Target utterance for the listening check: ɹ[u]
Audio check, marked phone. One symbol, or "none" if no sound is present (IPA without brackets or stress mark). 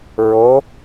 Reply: o